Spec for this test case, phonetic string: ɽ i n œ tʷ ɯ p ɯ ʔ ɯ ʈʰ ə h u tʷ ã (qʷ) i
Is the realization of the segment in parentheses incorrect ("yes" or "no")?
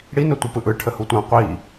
no